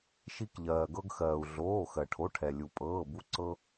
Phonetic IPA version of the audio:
ʃi˧kʎɜː˩ɡɤ˧ɡxɜː˩u̯ ɮoː˩˧˩xɜ˩ʈʰo˩˧˩ʈʰɛ˩ lʲu˩pʼɤː˩˧˩bu˧ ǀɤ˧

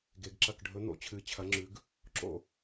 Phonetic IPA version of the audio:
ɡe˨˦ɡǁɐ˥˨k ɖʱɵ˨˦ n̪o̰˨˦t͡ɕʰɨ˨˦t͡ɕʰɐ˨˦ ŋ͡ǁʉ˨˦ɡ | ǁo̰˥˨

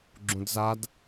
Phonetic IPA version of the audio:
ɡ͡ǁũdzad

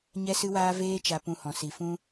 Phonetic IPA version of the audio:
ɲɛ˦sɨ˦waː˦ veː˦t͡ʃa˧pũ˧ hɔ̃˧si˧ fũ˦

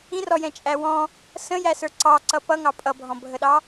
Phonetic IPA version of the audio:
ĩrɔjɛ̃t͡ʃʼæ wɔ̃ | sə̃jæsə˞ ǀɑǀʌ pʌŋɑ pʼʌbʱɔ̃bʱəɗɑ

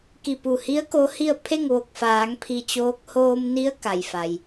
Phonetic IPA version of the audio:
ki˧˩pu˧˩hi˧˥ə̯ ko˧˥hi˥˨ə̯ pʰe˥˨ŋʋo˧˩k̚faː˩˧ŋ pʰi˧t͡ɕoː˧˥k̚ hoː˧mni˧˥ə̯ ka˩jfa˩j

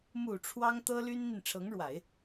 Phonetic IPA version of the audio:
mu˨˩ ʈ͡ʂʰwɑ˥ŋt̪ɤ˥ly˥nn̪i˨n ʈ͡ʂʰɤ˧˥ŋɻwa˨˩˦ɪ̯

